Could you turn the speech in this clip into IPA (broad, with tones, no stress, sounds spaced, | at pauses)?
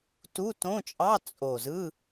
t u˧˥˧ t õ˧˥˧ t͡ʃʼ ɑ˧˥˧ t͡sʼ o˨˩ z ɯ˧˥˧